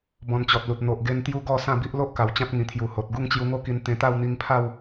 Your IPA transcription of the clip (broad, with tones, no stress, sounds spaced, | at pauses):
b ɔ̃˧ n t͡ɕ ɔ˨ t̚ l u˨ t̚ n̪ o˨ ʔ ɡ e˧ n t̪ j u˦ ɡ ɔ˥˧ s ã˥˧ b i˦ ʔ l o˦ ʔ k a˨˩ w t͡ɕ ã˦ t̚ ŋ ĩ˨˩ t̪ʰ j u˨˩ h o˨ t̚ ɡ u˥˧ ŋ t͡ɕ j u˧ ŋ o˥˧ k i˧ n t̪ ẽ˧ t̪ a˥˧ w n̪ i˧ ŋ pʰ a˥˧ w